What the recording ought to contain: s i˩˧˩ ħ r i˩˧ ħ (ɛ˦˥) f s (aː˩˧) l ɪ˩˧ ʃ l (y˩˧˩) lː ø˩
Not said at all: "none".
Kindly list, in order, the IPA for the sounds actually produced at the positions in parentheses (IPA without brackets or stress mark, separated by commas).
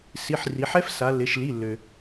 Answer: ɛ˦˥, a˩˧, i˩˧˩